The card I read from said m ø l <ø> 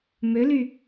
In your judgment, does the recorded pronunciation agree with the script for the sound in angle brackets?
no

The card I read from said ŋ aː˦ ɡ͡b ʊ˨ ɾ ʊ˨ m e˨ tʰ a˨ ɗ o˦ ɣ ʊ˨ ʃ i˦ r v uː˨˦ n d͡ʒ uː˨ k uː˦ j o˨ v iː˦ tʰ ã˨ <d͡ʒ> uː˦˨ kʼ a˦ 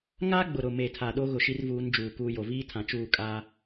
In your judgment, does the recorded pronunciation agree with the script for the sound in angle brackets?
no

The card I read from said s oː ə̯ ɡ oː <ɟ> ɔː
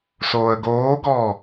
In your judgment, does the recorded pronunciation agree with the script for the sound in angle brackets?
no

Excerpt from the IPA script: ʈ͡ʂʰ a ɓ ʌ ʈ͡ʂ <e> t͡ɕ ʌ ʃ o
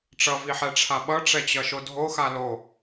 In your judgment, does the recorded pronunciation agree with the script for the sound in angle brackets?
no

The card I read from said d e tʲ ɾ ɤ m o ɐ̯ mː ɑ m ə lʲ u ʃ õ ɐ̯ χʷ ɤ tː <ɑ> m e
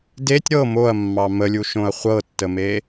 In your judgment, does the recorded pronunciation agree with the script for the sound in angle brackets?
no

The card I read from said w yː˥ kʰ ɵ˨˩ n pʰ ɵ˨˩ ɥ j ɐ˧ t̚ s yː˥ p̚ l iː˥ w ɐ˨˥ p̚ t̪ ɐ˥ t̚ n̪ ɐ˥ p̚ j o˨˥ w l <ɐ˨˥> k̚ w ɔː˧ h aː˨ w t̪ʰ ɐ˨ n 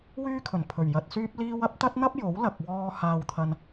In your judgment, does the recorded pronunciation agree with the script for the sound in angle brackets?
no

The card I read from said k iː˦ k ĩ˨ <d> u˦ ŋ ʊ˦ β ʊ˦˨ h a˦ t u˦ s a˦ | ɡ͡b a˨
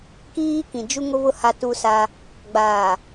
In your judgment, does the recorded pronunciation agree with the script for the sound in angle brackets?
no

